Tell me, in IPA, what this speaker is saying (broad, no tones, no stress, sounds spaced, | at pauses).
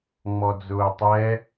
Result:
ŋ͡m ɔ d͡z ʊː tˤ ɛ